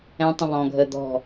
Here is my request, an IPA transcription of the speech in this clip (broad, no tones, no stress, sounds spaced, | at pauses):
ɛ̃ tˤ ə̃ β ɔ̃ ɡʱ ə d̪ ɔ̤